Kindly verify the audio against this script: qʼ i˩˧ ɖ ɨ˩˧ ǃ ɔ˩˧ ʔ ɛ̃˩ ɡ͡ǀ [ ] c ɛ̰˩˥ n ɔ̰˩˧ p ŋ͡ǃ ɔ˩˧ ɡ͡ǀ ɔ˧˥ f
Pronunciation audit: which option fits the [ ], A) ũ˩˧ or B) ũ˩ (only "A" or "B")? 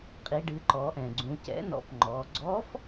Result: A